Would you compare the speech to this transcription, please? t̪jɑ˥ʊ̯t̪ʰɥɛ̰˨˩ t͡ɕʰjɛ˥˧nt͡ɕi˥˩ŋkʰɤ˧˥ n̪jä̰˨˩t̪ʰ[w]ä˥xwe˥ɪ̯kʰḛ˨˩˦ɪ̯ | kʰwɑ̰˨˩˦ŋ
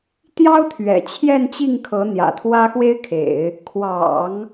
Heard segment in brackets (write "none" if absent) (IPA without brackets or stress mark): w